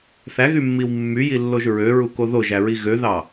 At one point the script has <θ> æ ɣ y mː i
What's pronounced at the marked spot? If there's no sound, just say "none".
θ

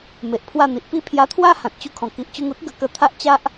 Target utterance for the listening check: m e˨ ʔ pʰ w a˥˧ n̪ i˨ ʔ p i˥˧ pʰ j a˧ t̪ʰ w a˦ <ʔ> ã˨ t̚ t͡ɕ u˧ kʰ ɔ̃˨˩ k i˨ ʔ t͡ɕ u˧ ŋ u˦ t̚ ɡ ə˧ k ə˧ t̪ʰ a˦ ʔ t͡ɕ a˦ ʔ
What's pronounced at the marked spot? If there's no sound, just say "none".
h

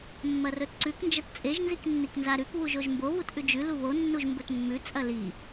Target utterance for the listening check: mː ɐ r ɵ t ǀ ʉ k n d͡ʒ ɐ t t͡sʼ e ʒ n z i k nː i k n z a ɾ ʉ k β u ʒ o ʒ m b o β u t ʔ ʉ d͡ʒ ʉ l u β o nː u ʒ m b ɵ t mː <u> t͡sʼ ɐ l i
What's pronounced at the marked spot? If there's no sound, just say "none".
ʉ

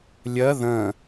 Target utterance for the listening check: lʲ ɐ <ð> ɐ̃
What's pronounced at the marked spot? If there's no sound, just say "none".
ð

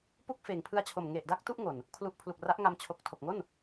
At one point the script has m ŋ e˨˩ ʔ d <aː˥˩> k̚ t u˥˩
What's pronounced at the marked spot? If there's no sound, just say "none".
a˥˩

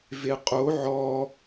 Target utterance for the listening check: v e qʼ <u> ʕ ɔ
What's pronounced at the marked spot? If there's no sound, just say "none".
o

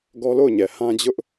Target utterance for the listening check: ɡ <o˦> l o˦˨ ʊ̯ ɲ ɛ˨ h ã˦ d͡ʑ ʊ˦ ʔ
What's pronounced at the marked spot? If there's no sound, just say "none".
ɔ˦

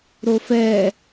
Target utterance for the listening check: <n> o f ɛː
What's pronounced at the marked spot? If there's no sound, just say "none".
ɾ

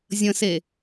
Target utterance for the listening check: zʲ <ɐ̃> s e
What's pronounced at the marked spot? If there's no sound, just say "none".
ə̃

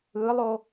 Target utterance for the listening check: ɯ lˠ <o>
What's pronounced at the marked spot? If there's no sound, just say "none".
o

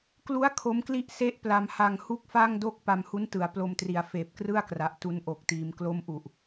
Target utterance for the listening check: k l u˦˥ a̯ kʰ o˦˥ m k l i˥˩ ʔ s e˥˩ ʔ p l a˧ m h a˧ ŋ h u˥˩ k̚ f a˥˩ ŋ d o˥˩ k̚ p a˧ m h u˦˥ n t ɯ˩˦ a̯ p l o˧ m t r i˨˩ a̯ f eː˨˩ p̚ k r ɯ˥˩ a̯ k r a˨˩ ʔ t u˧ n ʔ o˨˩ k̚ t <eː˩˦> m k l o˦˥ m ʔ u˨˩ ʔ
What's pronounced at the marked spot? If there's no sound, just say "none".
iː˩˦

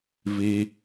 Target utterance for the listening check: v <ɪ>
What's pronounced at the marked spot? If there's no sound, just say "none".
i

